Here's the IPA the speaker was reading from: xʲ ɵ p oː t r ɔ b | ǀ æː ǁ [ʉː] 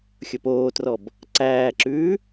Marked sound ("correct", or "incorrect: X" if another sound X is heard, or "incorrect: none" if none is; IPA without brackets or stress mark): correct